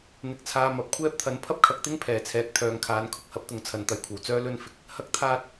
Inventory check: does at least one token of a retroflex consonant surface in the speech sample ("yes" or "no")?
no